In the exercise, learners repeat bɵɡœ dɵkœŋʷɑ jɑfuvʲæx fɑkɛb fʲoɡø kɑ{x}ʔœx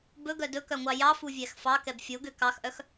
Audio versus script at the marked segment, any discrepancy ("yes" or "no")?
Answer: no